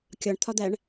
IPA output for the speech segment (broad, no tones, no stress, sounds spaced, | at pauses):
kʲ ɒ ɳ t̪ʰ ɒ d̪ æ ɳ